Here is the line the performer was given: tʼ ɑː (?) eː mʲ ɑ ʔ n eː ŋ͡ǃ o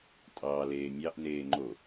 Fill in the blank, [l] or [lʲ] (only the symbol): l